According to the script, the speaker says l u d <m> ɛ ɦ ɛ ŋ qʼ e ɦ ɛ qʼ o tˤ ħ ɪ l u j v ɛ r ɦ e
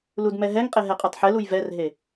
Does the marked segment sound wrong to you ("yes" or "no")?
no